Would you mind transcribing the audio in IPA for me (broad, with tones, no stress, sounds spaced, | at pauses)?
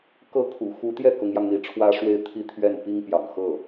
k ɤ˥˩ kʰ ṵ˨˩ x u˧˥ t̪ j ɛ˥˩ k ʊ˧˥ ŋ j ɑ˧ ŋ n̪ i˧˥ ʈ͡ʂʰ w ä˥ ʂ w e˥˧ ɪ̯ t̪ʰ i˥˧ t̪ʰ ɥ ɛ˥˩ n p i˥ ŋ p j ɑ̰˨˩ ŋ x ɤ˥˩